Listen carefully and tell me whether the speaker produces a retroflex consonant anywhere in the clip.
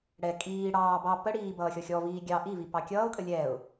yes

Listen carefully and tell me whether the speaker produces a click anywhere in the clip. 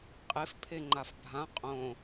yes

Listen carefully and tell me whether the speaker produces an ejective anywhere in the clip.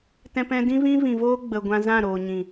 no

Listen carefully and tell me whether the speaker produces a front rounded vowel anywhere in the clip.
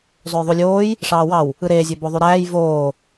yes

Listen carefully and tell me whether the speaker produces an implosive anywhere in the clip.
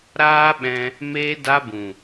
yes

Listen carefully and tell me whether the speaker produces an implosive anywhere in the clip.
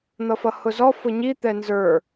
no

